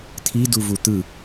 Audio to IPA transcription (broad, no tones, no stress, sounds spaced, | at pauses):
t̪ʰ i d u v u t̪ ɯ